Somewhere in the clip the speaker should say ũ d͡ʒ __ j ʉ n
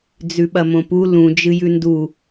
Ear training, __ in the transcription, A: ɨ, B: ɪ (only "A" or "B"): A